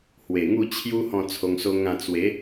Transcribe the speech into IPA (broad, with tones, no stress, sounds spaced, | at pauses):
h w e˨˩ ŋ u˥˧ t͡ɕʰ j u˦ h ɔ̃˥˧ t͡sʰ o˧ ŋ s o˦ ŋ ã˥˧ t͡s w e˨˦